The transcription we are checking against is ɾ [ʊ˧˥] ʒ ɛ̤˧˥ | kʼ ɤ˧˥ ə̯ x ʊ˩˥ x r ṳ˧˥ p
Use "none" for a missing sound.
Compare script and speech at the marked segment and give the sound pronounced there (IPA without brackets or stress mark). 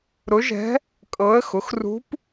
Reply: ʊ˧˥